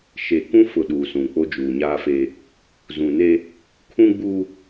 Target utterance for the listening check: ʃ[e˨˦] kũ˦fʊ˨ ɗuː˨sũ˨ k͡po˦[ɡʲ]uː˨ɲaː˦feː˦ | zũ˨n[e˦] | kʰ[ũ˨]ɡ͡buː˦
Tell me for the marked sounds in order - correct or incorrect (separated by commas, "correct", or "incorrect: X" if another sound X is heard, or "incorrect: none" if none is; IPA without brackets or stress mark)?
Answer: incorrect: e˨, incorrect: d͡ʒ, correct, incorrect: ũ˦